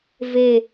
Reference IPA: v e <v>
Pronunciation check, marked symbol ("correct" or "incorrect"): incorrect